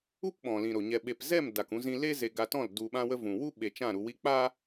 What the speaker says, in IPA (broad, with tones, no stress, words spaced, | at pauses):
u˦pɓɔ̃˨lĩ˨ ɾo˨ɲɛ˧ ɓe˨pzɛ˦˨m da˨kũ˧zĩ˧le˦ ze˧ɡa˧tɔ̃˦˨l du˨ɓã˧wə˧ vũ˨ wu˦ɓe˨ t͡ʃã˦˨ɾu˧wi˦ k͡paː˦